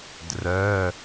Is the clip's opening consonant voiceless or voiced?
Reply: voiced